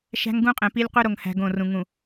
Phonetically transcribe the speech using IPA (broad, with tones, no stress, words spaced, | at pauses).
ʃæ̤˦ŋɡũ˦qʼẽ˨pi˦lʲ qʷe˦ɾo˨ŋhæ̤˨ ɡõ˦˨rũ˨ ŋũ˨